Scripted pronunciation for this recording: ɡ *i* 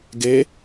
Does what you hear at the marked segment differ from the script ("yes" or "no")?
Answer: yes